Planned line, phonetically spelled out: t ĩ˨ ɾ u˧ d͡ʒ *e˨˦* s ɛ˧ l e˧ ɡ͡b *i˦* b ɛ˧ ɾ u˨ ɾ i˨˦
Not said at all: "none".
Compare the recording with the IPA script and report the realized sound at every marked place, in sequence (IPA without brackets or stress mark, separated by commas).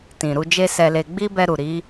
e˦, i˦